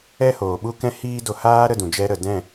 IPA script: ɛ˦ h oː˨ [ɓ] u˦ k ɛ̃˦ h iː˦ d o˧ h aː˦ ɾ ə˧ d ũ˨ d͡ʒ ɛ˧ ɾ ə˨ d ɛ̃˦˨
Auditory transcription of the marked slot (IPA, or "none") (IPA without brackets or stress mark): ɓ